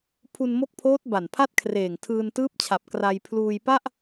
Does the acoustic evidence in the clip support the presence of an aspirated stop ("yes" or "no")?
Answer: yes